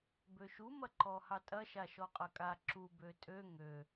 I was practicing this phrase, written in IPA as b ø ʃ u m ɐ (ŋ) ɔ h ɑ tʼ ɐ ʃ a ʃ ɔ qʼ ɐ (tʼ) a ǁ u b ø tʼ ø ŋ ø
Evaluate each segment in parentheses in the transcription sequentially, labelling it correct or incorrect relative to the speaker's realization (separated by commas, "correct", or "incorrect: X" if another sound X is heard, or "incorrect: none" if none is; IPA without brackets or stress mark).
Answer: incorrect: ǃ, incorrect: kʼ